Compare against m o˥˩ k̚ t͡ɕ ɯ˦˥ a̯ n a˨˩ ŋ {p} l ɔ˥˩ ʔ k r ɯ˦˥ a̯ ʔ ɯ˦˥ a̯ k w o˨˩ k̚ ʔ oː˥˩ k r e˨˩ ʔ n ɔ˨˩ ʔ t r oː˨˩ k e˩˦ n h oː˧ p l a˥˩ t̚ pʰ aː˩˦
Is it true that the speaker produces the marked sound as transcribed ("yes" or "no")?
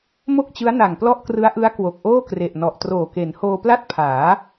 yes